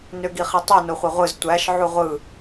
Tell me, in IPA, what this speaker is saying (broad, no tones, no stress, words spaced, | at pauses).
nøɡiχitˤø noχʷeʁʷɯz tʷæʃ ʕuʁʷɯ